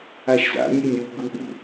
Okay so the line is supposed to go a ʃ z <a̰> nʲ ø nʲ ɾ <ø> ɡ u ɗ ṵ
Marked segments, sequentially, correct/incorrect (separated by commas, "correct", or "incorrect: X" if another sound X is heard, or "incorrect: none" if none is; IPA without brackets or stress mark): correct, incorrect: u